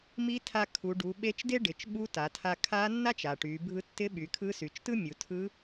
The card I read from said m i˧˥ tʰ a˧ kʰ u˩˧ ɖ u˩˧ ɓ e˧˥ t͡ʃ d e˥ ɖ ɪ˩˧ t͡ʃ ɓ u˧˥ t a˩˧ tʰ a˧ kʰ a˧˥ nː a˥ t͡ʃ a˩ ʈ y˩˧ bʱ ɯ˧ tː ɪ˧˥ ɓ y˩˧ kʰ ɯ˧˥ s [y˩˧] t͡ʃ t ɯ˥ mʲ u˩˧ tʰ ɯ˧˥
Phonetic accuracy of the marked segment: correct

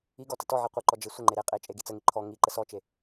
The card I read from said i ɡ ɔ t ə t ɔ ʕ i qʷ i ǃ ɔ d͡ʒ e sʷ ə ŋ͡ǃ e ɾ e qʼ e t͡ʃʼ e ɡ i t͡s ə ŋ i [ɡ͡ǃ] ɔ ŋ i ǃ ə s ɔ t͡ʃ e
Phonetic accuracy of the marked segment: incorrect: ǃʰ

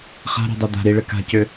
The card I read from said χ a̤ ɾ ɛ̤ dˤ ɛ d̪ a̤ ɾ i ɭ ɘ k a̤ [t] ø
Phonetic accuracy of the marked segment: incorrect: c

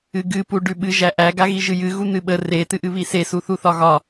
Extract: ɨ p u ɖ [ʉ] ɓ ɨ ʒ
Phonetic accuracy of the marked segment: correct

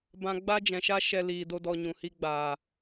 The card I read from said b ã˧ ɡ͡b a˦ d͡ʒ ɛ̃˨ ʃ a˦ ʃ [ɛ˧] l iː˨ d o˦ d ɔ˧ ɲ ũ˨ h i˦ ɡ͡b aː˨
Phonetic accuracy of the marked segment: correct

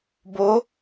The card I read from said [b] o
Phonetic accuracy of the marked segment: correct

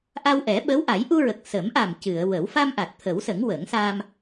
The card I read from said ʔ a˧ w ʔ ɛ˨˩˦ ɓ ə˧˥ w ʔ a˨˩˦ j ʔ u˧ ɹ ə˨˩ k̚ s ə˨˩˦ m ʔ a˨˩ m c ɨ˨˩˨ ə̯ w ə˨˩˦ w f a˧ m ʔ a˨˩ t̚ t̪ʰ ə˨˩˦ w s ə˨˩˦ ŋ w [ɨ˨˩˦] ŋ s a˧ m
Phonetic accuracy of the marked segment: incorrect: ə˨˩˦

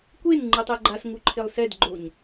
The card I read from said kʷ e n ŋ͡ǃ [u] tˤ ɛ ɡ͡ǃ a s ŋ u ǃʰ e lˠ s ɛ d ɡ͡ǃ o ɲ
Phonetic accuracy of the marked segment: incorrect: ɯ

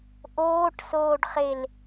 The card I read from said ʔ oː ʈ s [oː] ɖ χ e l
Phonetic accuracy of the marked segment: correct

